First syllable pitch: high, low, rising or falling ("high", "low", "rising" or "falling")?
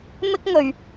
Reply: high